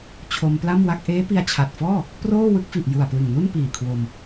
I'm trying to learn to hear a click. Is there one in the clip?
no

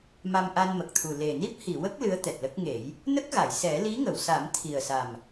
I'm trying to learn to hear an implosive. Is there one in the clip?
no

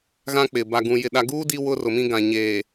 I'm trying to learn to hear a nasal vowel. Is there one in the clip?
yes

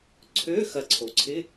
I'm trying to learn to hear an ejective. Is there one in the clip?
no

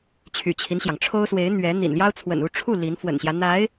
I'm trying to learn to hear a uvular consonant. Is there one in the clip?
no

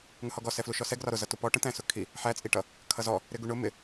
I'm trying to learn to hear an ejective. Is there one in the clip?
yes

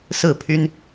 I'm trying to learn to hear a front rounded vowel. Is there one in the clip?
yes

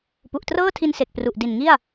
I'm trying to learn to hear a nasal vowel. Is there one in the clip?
no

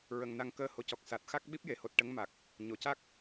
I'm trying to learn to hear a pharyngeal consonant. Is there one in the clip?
no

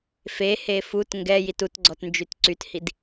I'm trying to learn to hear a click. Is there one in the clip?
yes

